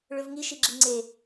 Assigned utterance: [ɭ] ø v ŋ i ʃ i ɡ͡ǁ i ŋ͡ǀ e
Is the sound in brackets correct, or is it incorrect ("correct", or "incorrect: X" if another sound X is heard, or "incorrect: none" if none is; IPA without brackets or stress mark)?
correct